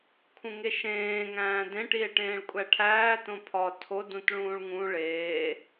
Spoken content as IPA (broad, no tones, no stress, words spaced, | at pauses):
kʰũŋeʃẽː ŋæ̃ːdẽ ʈie̯ʈẽːɭkʷʼæʈʰæː tõpʰɒ tʰo dũtɭũːɭŋũ ɭeː